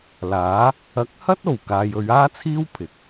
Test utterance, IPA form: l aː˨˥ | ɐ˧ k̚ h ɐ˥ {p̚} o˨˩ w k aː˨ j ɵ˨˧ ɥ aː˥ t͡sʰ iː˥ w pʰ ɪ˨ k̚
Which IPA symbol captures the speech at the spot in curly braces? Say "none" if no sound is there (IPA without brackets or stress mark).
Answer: t̚